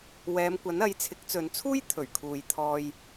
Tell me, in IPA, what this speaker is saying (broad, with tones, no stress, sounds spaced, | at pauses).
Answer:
w ɛː˨˧ m kʷ ɐ˨˥ n ɐ˨˧ j t͡sʰ ɪ˨˥ k̚ t͡s ɵ˨ n t͡sʰ uː˥ j t̪ʰ ɵ˨˩ ɥ kʰ uː˨ j t̪ʰ ɔː˧ j